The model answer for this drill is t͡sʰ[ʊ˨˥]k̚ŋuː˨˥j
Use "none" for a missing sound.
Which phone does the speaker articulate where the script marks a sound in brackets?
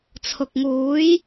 ʊ˨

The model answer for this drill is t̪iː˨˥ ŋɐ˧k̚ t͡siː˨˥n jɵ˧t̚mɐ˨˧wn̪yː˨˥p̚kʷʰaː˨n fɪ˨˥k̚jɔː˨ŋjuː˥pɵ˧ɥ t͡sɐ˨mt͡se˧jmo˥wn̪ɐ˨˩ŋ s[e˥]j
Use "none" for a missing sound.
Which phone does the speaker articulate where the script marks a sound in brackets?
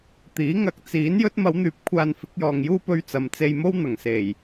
e˨˩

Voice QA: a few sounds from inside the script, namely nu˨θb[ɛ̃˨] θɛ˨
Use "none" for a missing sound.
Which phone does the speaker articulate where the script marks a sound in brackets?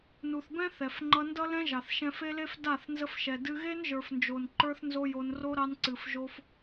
ɛ̃˦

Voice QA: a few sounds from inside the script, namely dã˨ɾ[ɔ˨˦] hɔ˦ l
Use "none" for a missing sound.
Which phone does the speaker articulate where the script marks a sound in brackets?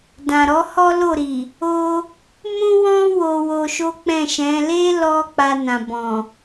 ɔ˨˦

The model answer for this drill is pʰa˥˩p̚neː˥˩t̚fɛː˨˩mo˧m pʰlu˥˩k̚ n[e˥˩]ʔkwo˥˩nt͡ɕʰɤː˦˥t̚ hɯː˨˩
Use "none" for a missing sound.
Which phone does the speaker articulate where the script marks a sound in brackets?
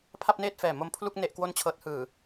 e˥˩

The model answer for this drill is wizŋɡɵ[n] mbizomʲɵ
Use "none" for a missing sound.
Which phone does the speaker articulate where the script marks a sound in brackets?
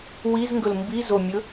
l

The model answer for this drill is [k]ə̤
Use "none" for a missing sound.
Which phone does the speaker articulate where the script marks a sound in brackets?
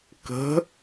k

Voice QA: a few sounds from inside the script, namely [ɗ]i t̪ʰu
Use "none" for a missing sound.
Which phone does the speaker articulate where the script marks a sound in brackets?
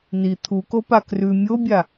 n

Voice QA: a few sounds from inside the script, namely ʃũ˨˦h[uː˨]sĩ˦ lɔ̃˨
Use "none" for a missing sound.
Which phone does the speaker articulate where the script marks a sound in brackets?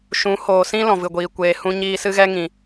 oː˨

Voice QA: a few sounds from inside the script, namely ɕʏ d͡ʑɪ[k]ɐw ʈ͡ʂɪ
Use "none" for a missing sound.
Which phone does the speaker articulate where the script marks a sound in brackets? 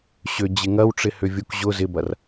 ŋ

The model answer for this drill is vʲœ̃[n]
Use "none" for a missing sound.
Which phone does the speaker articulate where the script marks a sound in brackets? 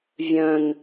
n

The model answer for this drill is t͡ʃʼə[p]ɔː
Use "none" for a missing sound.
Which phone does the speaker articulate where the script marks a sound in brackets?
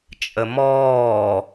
m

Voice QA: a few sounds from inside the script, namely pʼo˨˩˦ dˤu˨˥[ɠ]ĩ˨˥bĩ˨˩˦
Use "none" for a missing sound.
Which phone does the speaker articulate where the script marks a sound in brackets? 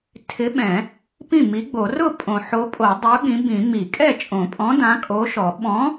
ɠ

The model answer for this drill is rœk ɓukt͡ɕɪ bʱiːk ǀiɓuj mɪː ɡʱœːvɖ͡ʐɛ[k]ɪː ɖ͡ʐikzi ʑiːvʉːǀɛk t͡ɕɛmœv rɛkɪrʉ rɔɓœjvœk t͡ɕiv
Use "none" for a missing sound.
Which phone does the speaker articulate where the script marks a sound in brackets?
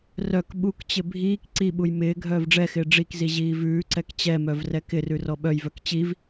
x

